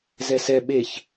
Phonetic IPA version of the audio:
z ɛ s ɛ ɓ e ç

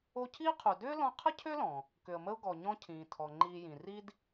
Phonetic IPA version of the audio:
o˦ cʰ iː˥ qʰ u˨ d ʏː˥ l ɔ̃˥ qʰ ə˥ cʰ ø˥ l ɔ̃˩ | k ʏ˨ ə̯ m ə˦ ʊ̯ ɡ ɔ˨ ɲ ɔ̃˦ cʰ ĩː˩ tʰ ɔ˩ ŋ͡ǃ iː˨ j ĩ˩ r i˦ d

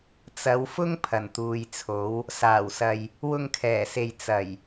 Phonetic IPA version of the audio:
t͡s ɐ˨˧ w f ʊ˥ ŋ pʰ ɐ˨˩ n t̪ uː˨ j t͡sʰ o˨˥ w | s aː˨˩ w s ɐ˨ j | w ʊ˧ ŋ kʰ ɛː˨˩ s e˨ j t͡s ɐ˨˩ j

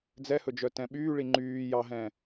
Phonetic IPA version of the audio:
d͡z ɛ h ɵ d͡ʒ œ t ɛ̃ ɓ yː ɭ i ŋ͡ǃ yː j ɑ ɦ ɛ̃

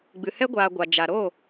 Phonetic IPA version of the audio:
ɡ͡b ɨ˨ h ɛ˦ ɡʷ aː˨ ɡʷ a˨ d͡ʒ a˨ ɾ o˦˨

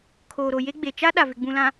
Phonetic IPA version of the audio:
kʰ oː˨ ɾ o˨ j e˦ ɡ͡b e˨ t͡ʃ a˦ ɗ a˨ v ɪ˨ ɡ͡b ũ˨ l ã˨

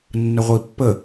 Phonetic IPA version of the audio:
nː ə ʁʷ i pː ə

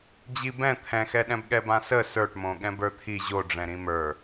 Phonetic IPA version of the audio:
d͡ʑ i b ɛ̃ t̪ʰ ɛ̃ x ɛ ɗ ɛ̃ b ɠ ɛ b ã s ə s ə˞ ʈ m õ ɠ ɛ̃ b ə˞ t̪ʰ i ʑ o ɖ͡ʐ ɛ̃ ɾ ĩ m ə˞

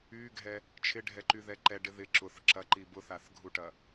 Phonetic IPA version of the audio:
y ɡʱ ɛ | t͡ʃʰ ɪ ɖʱ ɛ ǃ y ð ɛ ǃ ɛ ɖ ɪ ð ɪ ǁ ʊ θ ǁ ɐ ǃ i b ʊ θ a θ ɡʱ u ʈ ɐ

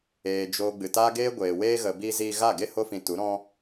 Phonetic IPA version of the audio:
eː˨ d͡ʒ oː˨ ɡ͡b ɨ˨ t aː˦ ɡ eː˦ ɡʷ eː˨ w eː˧ ɣ ə˨ b i˧ z iː˧ ɣ a˦˨ ɡ e˦˨ h o˧ f ĩ˨ t u˨˦ ɾ ɔ̃˦

